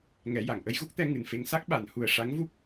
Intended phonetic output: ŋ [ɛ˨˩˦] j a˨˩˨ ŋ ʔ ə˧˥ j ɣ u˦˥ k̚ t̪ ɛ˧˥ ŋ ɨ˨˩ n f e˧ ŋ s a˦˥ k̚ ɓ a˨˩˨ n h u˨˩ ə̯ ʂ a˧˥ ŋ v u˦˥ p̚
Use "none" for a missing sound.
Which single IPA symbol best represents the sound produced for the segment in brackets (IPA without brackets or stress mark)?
ɛ˨˩˦